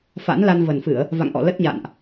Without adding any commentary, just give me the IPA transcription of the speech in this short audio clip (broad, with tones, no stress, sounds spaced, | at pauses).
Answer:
f a̰˧˥ n l a˧ n v ə˨˩ n f ɨ˧˩˨ ə̯ | v a̰˧˨ ŋ ʔ ɔ̰˧˨ l ə˦˥ t̚ ɲ a̰ː˧˨ n ʔ